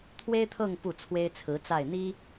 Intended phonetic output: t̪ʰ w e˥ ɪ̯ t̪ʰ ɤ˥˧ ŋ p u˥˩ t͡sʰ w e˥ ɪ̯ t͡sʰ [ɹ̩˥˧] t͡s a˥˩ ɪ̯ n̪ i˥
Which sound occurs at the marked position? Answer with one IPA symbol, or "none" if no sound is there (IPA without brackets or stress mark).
ɹ̩˧˥